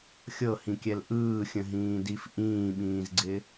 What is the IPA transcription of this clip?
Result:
xʲɤhĩkʲɛl ʔɯːxʲə̃ɦĩːdif ʔĩːɓĩːzɡ͡ǀɪ

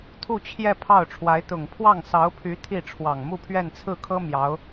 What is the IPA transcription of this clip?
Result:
t̪ʰu˥˧t͡ɕʰjɛ˥˧ pʰɑ˥˩ʊ̯ʈ͡ʂʰwa˧˥ɪ̯ t̪ʊ˨˩ŋpʰwɑ˥˩ŋsɑ˧˥ʊ̯pʰy˧˥ t̪ʰi˥˩ ʈ͡ʂʰwɑ˨˩ŋmu˥˧pʰɥɛ˥˧n t͡sʰɹ̩˥˩kʰɤ˥ mjɑ˧˥ʊ̯

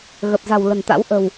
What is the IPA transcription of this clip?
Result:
ɣə˨˩p̚za̤˨˩w lə̤˨˩nt̪a̰˧˥w ʔə̤˨˩w

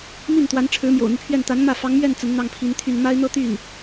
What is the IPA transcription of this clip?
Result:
mi˥˩nt̪wa˧˥n ʈ͡ʂʰɻ̩˧˥mjo̰˨˩ʊ̯n̪y˦pʰɥɛ˥˩n t̪a˧˥nmä˥˩ fɑ˧˥ŋmɥɛ˥˩n t͡sə˧˥nn̪ɑ˥˩ŋpʰi˧˥nt̪ʰy˥˩n ma˥ɪ̯n̪ɤ˥t̪y˥˩n

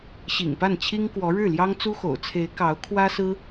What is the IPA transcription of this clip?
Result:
ɕḭ˨˩ŋpa˥˩nt͡ɕʰi˥ŋkwɔ˧˥ ɻɻ̩˥˩ljɑ˥ŋt͡su˥xo̰˨˩ʊ̯ t͡sʰe˧˥ɪ̯ kɑ˧˥ʊ̯ kʰwä˥sɹ̩˥

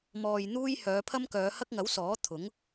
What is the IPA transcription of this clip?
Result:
mɔː˨j n̪uː˥j hœː˨˧pʰɐ˥mkœː˨˧ hɐ˥k̚ŋɐ˨˥wsɔː˨˥ t̪ʰʊ˨˥ŋ

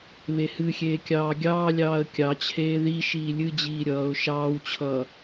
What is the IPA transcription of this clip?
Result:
βehɨxʲeː kʲɑːɡʲɑːlʲɑːə̯ kʲɑt͡ɕʰeː ði ʃiːlʲɨd͡ʑiː ɾʲʌːʊ̯ ʃɑːwt͡ɕʰʌː

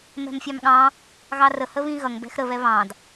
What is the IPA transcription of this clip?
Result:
mɛ̤mfʲɑmɠɑ̃ | ɣɑrə həβĩɣʌŋ bɛ̤xɾə βɛβɑ̃d

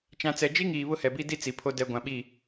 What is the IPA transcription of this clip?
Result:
t͡ʃã˨ t͡sɛ˨d͡ʒi˦ŋiː˨ βʊ˦hɛ˨bi˦di˦ t͡si˨pʰo˦ dɛ˨ ɡʷã˨ɓi˦˨

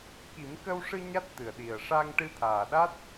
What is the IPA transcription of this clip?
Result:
ki˨˩˦mkə˧wʂɨ˧ ɲa˦˥t̚t̪ɨ˨˩ə̯ɗi˨˩ə̯ ʂa˧ŋ ʈɨ˧t̪ʰaː˨˩ɗa˦˥t̚

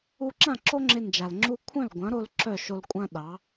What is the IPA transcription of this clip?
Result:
u˧ǁã˥˩ ǁo˥ŋ͡ǁɪ˧nd͡ʒa˩l ŋ͡ǁu˧kʷʰœ̃˥˩l ɡʷɐ̃˩˥ɾo˧l ǁœ˥˩ʃo˧lkʷʼɐ̃˥ɗɑ˩˥

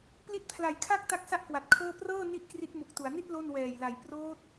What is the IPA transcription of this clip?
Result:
pli˦˥t̚pʰla˨˩jkʰa˥˩k̚ ta˥˩k̚sa˥˩ʔkwa˨˩t̚kʰɤː˥˩ prɤː˥˩ ni˥˩ʔkri˦˥t̚mu˨˩k̚tu˩˦a̯ ni˥˩t̚ lo˥˩n wɛː˨˩jla˨˩j proː˦˥t̚

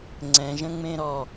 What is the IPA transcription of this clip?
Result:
ŋ͡ǀɛ̃ʒə̃ŋ͡mẽ ɾɔ

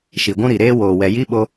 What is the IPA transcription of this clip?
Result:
ʃi˨ɡʷũ˦ ɾi˨ɾeː˦woː˨wɛ˨ ji˦ɓo˦

